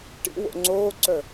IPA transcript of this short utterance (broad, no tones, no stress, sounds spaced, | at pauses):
ʈ ḭ w o̰ ŋ͡ǀ oː ǀ œ